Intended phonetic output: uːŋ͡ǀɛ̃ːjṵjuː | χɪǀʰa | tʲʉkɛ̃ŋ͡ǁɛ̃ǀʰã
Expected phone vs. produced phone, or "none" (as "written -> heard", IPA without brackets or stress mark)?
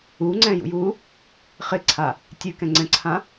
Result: ŋ͡ǁ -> ŋ͡ǀ